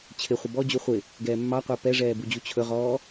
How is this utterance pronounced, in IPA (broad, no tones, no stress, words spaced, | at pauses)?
t͡ɕʰɪ χʷəbɔ d͡ʑuχʷɪ | ɡɛːmːɑqʷəː pɛʐɛːbud͡ʑu t͡ɕʰɵʁɔː